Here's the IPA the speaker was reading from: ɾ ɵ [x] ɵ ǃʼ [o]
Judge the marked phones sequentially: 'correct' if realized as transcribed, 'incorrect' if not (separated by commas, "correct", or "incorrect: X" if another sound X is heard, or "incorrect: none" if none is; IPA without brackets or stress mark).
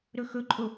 correct, correct